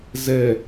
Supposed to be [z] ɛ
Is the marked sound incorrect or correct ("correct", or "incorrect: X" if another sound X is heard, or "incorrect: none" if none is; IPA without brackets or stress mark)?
correct